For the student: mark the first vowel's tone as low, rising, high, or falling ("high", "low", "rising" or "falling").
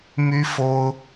high